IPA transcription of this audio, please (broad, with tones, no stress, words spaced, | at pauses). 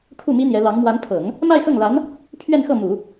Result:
kʰu˥˩mi˥n̪jɛ˧˥ lɑ˧˥ŋ mwa˧˥npʰɤ˨˩˦ŋ | ma˥˧ɪ̯xɤ˥˩ŋla˧˥n | pʰɥɛ˥˧nxɤ˥˩mu˨˩˦